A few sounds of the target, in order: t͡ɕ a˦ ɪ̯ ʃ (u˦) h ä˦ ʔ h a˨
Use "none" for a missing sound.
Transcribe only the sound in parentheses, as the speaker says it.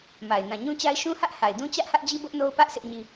ũ˦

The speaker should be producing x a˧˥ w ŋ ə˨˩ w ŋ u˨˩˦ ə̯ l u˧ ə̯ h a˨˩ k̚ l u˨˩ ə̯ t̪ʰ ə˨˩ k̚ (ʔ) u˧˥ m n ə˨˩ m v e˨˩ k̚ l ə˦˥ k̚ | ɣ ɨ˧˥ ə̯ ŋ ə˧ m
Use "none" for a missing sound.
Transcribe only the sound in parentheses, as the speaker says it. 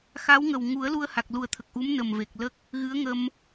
ʔ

